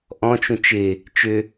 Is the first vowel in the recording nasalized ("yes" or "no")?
yes